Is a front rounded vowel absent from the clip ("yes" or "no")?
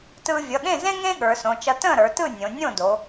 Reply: yes